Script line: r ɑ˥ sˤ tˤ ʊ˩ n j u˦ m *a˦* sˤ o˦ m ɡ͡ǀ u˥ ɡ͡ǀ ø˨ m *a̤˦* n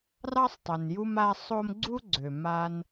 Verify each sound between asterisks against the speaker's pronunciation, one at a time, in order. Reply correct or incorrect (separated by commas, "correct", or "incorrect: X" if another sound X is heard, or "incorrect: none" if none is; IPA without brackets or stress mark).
correct, incorrect: a˦